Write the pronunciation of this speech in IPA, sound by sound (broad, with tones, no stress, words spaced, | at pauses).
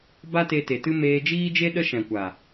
ba˦te˧te˨tɨ˦ meː˧d͡ʒiː˦d͡ʒe˦ ɗə˦ ʃɛ̃˨kʷa˨